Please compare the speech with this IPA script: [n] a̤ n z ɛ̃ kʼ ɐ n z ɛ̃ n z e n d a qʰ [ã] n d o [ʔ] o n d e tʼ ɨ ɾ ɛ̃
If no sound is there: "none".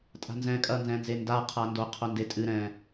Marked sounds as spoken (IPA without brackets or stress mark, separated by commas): tʼ, a, qʰ